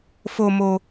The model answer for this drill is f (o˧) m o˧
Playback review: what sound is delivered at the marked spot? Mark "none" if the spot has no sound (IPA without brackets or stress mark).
o˧